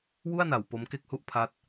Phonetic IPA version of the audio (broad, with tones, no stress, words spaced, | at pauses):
wu˥˩a̯na˩˦w po˦˥m ke˥˩k̚hu˥˩ʔpʰa˦˥t̚